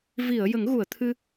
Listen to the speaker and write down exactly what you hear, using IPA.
v i˨˩˨ ə̯ j ə˨˩˦ ŋ ɣ u˨˩˨ ə̯ t̪ʰ ɨ˧

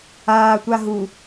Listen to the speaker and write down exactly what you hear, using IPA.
aː tʷ a ɦ u

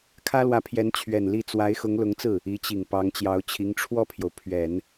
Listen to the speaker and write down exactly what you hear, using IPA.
kʰ ä˥ l w ä˧˥ pʰ j ɛ˧˥ n t͡ɕʰ ɥ ɛ˨˩ n l i˥˩ t͡s w a˧˥ ɪ̯ x ʊ˧˥ ŋ l ʊ˧˥ ŋ t͡s ɹ̩˥˩ | i˧˥ t͡ɕ i˨˩ ŋ p ɑ˧˥ ŋ t͡ɕ j ɑ˧˥ ʊ̯ t͡ɕʰ i˧˥ ŋ ʈ͡ʂʰ w ɔ˥˩ pʰ j o˩ ʊ̯ pʰ ɥ ɛ˨˩˦ n

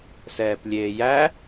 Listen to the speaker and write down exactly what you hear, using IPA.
s ɛː p lʲ eː j æ

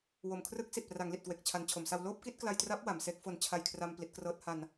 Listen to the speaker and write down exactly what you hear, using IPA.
w o˨˩ m kʰ r ɯ˦˥ k̚ s i˨˩ t̚ p r a˩˦ ŋ l i˨˩ t̚ k w e˨˩ k̚ t͡ɕʰ a˩˦ n t͡ɕʰ o˩˦ m s a˧ w l oː˥˩ p̚ k i˥˩ t̚ k l a˧ j t r a˦˥ p̚ w a˩˦ m s eː˦˥ k̚ f o˧ n t͡ɕʰ a˧ j kʰ r a˧ m p l i˦˥ t̚ k r ɤː˦˥ t̚ h a˧ n

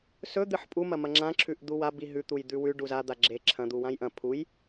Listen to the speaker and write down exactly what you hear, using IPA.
s ɵ d̪ ɨ ħ pʼ u m ɐ m ɐ ŋ͡ǁ ã ǁʰ ʉ ʔ d̪ u w a b i ɦ ʉ t̪ u j d̪ ʉ w ʉ ɖ u z a d̪ a ɡ͡ǁ e ǁʰ ɐ̃ d̪ u w ã j ʔ ɐ̃ pʰ u j

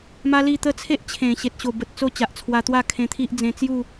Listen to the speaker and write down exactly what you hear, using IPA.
m a˦ l i˥˧ t̪ ə˥˧ t͡sʰ e˦ ʔ t͡ɕʰ ẽ˨˩ ɕ e˨ t̚ ɕ o˨˩ b ə˨ t̚ t͡s o˥˧ t͡ɕ a˨ ʔ t͡sʰ w a˧ t̪ w a˥˧ kʰ ẽ˧ t̪ʰ i˦ ʔ d͡z ẽ˧ t͡s j u˥˧

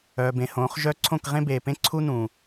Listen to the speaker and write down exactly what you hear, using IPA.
œː˨ b ẽ˨ h õː˨˦ χ ʒ œ˦ ǀʰ õ˦˨ k ʁ ẽ˦ b eː˨ p ẽ˦ ǀʰ u˦ n ũ˨

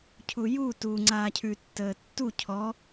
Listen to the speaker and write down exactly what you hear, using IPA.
cʰ u j u t u ŋ͡ǀ aː cʰ ʉ tː əː tː u cʰ ɔ

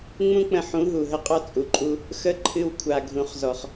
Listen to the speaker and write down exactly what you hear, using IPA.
ŋ͡m ũ˦ k͡p ə̃˧ ħ ũ˨˦ ɦ u˨ ɦ ə˦ qʼ ɔ˦ t͡sʼ u˨ ǃʼ u˦ | x ə˦ ǃʰ ɨ˧ w kʷʰ a˨ ɡʱ ũ˨ χ z ɔ˨ χ

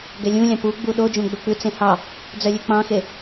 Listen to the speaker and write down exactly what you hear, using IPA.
ɡ ɛ lʲ ũ lʲ ɑ̃ p u ɡ͡b u ɗ o d͡ʒ õ ɡ͡b ɵ k͡p ʉ t͡s ẽ h ɑ | d͡z œ lʲ ø k͡p ɑ̃ x e

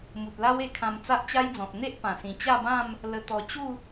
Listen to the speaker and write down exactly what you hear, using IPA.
m u˨ t̚ l a˦ w e˧ kʰ ã˧ m t͡s a˦ ʔ t͡ɕ a˦ j d͡z ɔ̃˨ t̚ n̪ e˦ ʔ p ã˨˩ s ĩ˨˩ t͡ɕ a˥˧ b ã˥˧ m | l ə˧ t̪ ɔ˨˩ t͡ɕ u˥˧

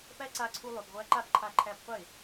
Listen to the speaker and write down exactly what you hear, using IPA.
p æ˦ ǀ a˧ ǀʰ u˧ lˠ ø˨ p ʁʷ æ˧ ǃ a˦˨ p ǃʰ a˧ ǃʰ æ˧ p qʷ e˦˨

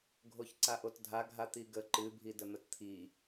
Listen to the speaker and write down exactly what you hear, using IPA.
ɡʱ o ç ǀ a ʔ o t dʱ a ɡʱ a t̪ i ɡ ə ǃ ɨ bʱ i d ə n̪ ə t t̪ʰ i

